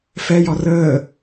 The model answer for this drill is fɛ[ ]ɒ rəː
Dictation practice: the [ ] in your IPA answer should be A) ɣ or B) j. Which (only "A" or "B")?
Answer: B